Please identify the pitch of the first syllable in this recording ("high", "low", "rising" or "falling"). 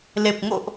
low